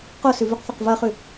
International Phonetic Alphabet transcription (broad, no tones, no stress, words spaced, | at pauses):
qosʉvʉqθoq vɐχʉ